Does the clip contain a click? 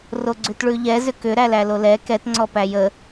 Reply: yes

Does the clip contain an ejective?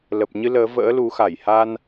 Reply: no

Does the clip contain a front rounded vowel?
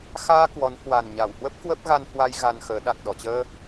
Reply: no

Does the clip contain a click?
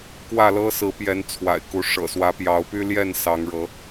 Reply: no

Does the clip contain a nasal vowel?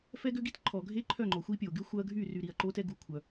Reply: no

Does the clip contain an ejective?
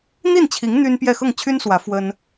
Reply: no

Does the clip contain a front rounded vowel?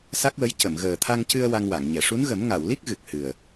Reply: no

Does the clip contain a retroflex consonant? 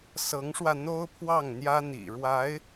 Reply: yes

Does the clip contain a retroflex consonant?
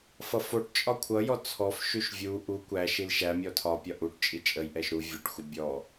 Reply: yes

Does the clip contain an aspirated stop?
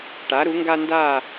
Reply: no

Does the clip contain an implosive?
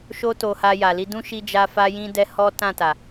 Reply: no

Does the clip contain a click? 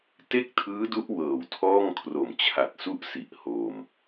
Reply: no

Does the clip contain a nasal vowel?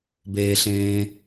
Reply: yes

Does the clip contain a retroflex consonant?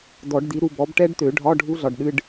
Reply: yes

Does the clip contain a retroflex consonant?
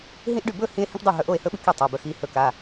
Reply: yes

